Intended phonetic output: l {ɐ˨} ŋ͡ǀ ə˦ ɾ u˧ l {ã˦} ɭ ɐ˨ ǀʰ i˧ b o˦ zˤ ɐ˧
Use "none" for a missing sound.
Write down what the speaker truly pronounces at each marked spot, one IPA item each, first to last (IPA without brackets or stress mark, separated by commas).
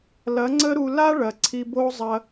ɐ˨˦, a˦